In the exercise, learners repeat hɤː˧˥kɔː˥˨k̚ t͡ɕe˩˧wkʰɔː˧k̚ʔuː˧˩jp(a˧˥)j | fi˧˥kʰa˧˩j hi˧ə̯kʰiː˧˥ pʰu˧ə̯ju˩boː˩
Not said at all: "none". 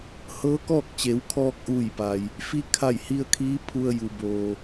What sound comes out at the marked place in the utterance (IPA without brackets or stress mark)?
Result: a˩